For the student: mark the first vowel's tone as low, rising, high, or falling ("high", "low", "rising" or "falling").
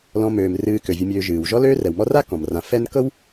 low